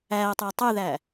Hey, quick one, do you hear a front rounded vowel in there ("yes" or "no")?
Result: yes